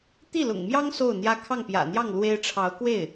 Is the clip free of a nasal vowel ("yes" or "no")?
yes